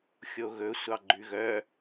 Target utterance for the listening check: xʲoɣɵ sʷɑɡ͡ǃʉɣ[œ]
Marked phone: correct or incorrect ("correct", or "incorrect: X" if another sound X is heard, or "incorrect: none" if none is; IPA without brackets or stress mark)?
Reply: correct